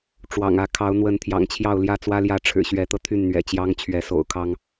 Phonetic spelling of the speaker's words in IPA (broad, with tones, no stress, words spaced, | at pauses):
ʈ͡ʂwɑ̰˨˩ŋä˥˨ kʰɑ˨˦ʊ̯n̪wə˨˦n t̪ʰjɑ̰˨˩ŋt͡ɕʰjɑ˥˨ʊ̯ ljä˥˨t͡swä˦ljä˥˨ ʈ͡ʂʰɻ̩˨˩ɕɥɛ˨˦t̪ɤ˧ t̪ʰy˥˨nn̪ɥɛ̰˨˩t͡ɕjɑ˦ŋ t͡ɕʰɥɛ˨˦so̰˨˩ʊ̯kʰɑ˦ŋ